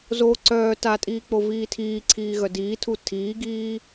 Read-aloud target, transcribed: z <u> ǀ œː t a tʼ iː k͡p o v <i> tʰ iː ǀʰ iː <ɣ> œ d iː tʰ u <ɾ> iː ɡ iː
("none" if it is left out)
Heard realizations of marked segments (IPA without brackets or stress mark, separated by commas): o, iː, ɣ, tʰ